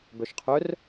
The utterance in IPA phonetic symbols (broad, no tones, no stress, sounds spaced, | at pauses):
b œ ʃ qʰ œ r